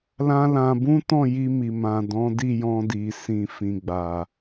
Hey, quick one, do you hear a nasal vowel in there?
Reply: yes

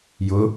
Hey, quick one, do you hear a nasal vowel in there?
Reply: no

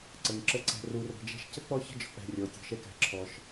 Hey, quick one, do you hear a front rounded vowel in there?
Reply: no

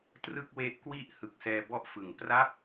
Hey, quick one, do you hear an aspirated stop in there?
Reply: no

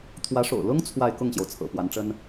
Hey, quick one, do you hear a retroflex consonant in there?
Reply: yes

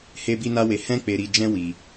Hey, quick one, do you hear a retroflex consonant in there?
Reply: no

